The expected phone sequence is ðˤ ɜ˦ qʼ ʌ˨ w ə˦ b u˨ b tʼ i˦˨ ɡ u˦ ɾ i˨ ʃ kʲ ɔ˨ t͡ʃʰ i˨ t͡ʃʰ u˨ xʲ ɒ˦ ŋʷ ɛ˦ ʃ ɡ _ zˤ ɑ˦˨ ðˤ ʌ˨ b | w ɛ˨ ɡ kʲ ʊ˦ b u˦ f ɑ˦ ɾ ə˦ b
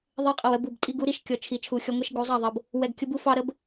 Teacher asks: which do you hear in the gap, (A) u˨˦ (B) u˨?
A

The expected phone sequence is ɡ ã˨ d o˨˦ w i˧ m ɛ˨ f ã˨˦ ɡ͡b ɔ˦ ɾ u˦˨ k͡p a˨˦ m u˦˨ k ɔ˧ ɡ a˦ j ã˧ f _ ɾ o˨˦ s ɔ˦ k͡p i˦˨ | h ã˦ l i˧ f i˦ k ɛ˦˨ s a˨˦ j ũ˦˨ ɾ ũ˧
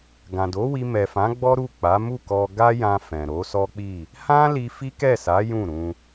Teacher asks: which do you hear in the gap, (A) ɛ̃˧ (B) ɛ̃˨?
B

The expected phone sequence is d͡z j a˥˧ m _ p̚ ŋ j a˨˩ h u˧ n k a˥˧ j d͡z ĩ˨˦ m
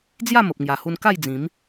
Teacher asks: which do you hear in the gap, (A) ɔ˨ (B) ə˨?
B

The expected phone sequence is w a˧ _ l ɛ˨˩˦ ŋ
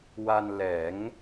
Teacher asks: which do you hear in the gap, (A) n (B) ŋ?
A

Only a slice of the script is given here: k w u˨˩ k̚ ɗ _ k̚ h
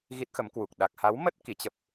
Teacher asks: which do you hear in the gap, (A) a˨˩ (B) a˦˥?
A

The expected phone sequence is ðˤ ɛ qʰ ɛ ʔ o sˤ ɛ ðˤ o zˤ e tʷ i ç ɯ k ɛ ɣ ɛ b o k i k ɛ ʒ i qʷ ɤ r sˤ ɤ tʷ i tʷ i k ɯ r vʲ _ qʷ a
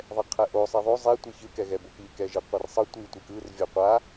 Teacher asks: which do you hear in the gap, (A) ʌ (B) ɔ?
B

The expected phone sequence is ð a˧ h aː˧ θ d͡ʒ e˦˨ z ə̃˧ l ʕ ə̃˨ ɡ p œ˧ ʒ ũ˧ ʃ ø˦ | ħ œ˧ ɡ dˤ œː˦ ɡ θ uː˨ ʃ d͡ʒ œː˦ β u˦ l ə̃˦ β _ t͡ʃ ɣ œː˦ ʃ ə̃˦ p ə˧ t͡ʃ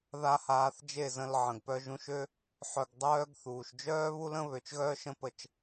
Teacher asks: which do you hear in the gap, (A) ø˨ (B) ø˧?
A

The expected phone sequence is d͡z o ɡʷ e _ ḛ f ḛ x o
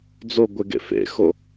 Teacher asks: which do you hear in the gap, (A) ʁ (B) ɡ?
B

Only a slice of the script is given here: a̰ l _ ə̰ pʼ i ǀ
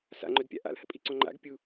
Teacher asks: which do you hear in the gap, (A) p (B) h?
B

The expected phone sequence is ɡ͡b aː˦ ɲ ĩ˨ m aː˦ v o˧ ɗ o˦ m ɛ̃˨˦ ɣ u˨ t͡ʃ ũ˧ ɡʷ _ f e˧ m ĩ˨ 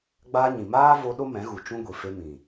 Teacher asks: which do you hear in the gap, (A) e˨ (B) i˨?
B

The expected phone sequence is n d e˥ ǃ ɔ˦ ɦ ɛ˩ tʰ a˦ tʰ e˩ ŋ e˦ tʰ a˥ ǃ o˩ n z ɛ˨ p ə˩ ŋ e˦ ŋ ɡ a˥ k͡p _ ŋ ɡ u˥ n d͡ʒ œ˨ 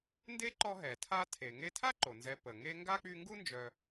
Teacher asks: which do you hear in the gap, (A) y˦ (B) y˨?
A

